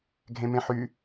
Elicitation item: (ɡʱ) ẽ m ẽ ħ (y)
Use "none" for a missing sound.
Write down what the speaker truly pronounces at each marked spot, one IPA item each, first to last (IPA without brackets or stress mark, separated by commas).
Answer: ɡʱ, y